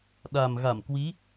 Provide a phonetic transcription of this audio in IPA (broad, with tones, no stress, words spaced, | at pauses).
ɗa˨˩mɣa˧˩mkwi˨˦